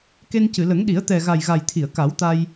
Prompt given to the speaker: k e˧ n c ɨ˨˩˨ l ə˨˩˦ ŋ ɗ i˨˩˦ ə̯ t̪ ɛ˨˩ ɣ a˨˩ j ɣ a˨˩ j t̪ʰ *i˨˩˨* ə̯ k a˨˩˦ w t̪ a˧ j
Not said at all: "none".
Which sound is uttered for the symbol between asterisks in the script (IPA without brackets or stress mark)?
i˨˩˨